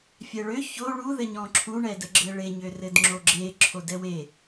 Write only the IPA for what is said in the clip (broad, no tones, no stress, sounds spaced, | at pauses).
fʲ ɛ ɭ ø ç o ɭ u ð ɘ ɲ ɔ̃ ǁʰ u ɳ ɛ d ə ɡ͡ǁ ɘ ɭ e ɲ ø r ɘ d ŋ͡ǁ o ɡ͡ǁ e ǁʰ o d ɛ w e